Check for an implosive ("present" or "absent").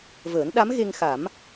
present